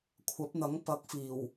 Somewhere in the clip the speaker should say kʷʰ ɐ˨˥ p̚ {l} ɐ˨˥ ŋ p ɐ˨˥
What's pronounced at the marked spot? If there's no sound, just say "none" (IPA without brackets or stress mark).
n̪